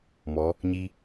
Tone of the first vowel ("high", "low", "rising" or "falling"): rising